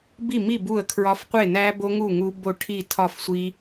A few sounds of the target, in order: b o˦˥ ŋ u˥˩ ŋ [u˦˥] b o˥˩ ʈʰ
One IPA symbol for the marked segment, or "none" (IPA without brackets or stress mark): u˦˥